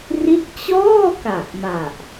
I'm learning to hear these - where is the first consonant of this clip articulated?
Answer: tongue tip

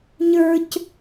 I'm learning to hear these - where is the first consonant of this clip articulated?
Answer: palate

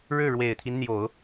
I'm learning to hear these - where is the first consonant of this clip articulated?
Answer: retroflex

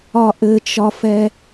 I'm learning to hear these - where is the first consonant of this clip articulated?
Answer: throat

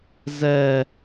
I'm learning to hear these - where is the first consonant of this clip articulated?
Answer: tongue tip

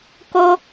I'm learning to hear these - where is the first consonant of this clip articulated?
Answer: velum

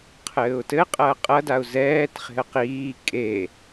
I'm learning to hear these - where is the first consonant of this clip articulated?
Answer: uvula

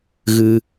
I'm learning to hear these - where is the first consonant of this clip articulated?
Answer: velum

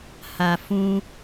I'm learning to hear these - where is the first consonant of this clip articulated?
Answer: throat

